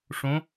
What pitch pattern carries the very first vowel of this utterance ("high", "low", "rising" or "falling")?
rising